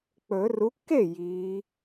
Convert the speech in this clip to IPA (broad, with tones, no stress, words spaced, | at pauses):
k͡pɵ˨˩˦ ru˨˦kːe˥˩ jiː˨˦